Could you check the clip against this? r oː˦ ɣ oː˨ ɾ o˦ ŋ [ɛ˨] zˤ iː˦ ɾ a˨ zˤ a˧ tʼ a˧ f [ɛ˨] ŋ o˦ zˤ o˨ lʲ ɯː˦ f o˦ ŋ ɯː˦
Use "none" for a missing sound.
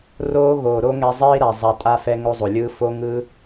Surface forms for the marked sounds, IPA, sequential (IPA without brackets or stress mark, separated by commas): ɛ˧, ɛ˧